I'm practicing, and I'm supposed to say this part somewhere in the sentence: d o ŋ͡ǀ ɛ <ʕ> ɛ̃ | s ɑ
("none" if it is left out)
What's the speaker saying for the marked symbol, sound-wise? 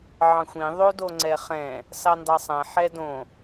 χ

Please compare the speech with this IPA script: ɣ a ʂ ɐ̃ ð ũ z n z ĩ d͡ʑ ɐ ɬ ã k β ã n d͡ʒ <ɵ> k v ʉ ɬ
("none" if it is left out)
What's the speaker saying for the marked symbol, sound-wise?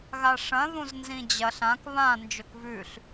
ɵ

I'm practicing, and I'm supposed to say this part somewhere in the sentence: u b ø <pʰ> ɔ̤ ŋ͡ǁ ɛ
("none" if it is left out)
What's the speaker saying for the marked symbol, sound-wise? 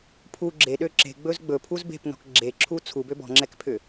b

